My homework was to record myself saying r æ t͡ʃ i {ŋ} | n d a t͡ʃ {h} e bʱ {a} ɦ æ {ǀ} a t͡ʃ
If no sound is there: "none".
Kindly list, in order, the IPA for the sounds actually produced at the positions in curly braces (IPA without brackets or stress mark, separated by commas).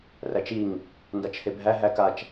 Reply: ŋ, h, æ, k